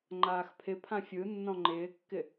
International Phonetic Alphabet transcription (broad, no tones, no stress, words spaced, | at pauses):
ŋ͡ǃaːxpʰɪpʰã fʲɯnːɔ̃ ŋ͡ǃɪːkːɪ